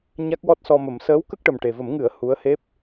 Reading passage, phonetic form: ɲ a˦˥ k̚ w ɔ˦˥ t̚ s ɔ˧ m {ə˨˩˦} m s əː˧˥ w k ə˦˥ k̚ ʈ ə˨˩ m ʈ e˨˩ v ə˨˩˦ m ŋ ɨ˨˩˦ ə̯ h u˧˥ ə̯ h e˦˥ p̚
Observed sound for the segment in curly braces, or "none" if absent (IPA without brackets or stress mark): ə˨˩˦